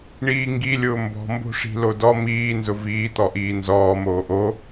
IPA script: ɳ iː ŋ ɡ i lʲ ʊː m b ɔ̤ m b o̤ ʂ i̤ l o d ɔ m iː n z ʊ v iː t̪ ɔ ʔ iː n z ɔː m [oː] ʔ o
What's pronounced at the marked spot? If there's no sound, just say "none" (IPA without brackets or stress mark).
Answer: oː